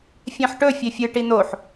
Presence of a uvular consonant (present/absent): absent